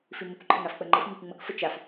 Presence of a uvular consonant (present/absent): absent